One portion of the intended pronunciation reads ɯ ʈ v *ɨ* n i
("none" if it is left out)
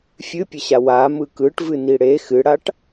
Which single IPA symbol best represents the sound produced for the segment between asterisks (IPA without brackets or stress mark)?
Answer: ɨ